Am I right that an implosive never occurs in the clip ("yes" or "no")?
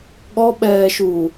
no